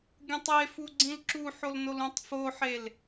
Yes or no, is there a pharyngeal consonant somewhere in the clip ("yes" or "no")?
yes